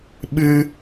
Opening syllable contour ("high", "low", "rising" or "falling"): low